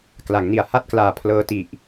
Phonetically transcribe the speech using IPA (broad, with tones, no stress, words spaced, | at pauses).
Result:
kla˩˦ŋni˨˩a̯ ha˥˩t̚klaː˨˩ pʰlɤː˧ti˨˩ʔ